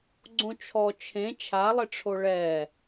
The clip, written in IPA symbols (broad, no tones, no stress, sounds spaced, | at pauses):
ɡ͡ǀ õ t͡ʃʰ ɔ t͡ʃʰ ẽ t͡ʃʰ a lˠ ɪ ʈ͡ʂʰ o ɭ ɛ